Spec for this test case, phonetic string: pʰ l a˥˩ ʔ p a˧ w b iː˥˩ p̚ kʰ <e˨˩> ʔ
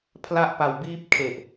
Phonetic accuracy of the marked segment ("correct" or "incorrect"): correct